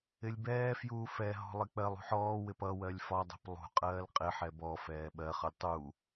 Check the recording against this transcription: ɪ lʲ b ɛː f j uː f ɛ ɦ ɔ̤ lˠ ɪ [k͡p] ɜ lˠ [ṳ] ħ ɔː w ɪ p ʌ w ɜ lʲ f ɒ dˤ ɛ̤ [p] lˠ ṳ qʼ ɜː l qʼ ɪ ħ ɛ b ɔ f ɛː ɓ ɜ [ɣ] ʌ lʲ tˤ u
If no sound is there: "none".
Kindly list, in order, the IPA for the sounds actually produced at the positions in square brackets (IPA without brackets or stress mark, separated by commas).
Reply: k͡p, ṳ, p, χ